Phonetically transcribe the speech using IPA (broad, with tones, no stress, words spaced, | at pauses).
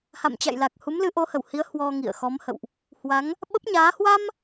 ha̰˧˨mt͡ɕa̰˧˨jla˨˩k̚ hu˨˦mlɨ˨˦ʔo˨˦hə˧˩w hi˨˦ə̯ hwɔ˧ŋḭ˧˨ə̯ xɔ˨˦mhə̰˧˨wʔ | hwa˨˦ŋ | ɓə˦˥p̚ɲaː˨˦ hwa˧m